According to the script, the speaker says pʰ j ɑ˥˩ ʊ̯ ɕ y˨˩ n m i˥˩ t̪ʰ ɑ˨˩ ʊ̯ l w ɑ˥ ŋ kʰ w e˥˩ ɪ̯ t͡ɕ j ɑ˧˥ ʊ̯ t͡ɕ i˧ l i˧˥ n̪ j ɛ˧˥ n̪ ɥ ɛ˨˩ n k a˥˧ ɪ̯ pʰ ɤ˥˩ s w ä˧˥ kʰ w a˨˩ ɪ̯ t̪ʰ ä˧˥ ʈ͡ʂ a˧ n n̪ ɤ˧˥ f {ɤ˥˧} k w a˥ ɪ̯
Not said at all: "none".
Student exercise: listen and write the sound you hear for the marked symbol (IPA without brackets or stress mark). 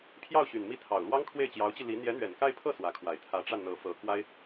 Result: ɤ˧˥